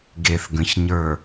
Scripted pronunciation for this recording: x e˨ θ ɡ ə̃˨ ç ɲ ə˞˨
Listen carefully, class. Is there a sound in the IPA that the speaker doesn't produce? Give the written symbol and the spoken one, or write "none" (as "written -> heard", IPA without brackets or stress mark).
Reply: x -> ɡ